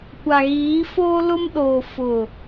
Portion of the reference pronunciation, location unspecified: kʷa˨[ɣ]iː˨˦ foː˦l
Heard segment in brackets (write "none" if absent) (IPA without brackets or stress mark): ɣ